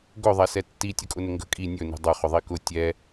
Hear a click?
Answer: no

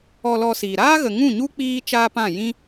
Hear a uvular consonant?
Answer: no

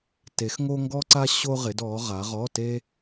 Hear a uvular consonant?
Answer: yes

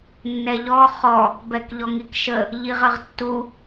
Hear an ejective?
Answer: no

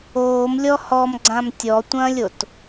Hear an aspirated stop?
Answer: no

